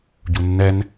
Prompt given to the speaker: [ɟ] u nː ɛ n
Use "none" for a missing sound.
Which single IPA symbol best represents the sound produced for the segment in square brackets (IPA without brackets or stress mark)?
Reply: ɟ